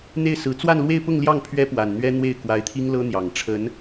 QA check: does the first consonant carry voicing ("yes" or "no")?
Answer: yes